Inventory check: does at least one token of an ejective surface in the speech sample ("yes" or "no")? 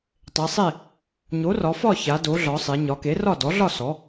no